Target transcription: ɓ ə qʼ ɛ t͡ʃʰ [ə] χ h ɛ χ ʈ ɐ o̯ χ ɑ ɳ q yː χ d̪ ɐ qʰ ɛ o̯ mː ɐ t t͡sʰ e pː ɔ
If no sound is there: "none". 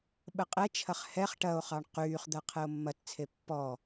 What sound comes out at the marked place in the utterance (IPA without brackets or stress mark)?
ɐ